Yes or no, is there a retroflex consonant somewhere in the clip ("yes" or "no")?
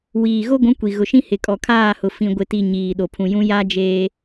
no